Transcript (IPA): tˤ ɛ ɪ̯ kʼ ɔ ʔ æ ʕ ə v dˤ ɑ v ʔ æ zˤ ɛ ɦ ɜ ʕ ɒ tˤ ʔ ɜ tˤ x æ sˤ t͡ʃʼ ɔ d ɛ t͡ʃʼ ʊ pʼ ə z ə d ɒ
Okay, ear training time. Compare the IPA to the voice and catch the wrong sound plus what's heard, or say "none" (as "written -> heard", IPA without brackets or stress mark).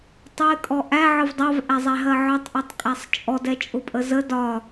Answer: x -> kʼ